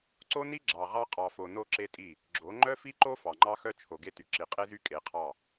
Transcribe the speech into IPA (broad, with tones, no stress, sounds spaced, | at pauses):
ǀ o˦ n i˦ ɡ͡ǁ ɑ˨ ʁ ɑ˦ qʼ ɑ˨ f o˨ n o˦ ǁ e˦ tʼ i˦˨ | ɡ͡ǁ o˨˦ ŋ͡ǃ œ˦ f i˦ ǃ o˦ f ɑ˨ ŋ͡ǃ ɑ˦ x œ˦ t͡ʃʰ o˨ ɡ e˦ t y˨ ǁ i˨ qʼ e˦ z y˦ kʼ e˨˦ qʰ ɑ˦˨